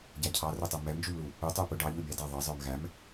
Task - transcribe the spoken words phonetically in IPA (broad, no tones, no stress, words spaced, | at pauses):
ɟæcʰɑrʊtˤɛ mɛmd͡ʒumlu | u tˤupʊ ɖɑʎu bʲɑdɑ ðˤʌzˤə˞m ɣæm